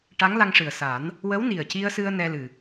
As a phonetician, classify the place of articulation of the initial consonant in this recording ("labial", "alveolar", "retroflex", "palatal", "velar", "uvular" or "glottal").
retroflex